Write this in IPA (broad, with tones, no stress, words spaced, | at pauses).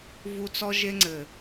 vu˦ t͡sɔ˦ ʒe˦ŋ͡ǀɘ˨